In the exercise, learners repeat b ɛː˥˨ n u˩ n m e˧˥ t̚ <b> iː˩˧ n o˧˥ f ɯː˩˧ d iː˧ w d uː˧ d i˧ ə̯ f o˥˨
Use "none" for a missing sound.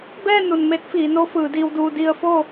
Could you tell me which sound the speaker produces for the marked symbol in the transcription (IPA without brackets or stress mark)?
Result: f